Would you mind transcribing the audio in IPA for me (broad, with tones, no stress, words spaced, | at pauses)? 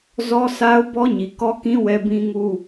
zɔ˦sʰa˦ʊ̯ bɔ˦ɲi˨kɔ˦kĩ˦ wɛ˦bĩ˦ŋu˦